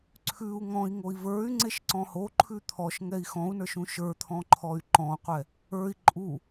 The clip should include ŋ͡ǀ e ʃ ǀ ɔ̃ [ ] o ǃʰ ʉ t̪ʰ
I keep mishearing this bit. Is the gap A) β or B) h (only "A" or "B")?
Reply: B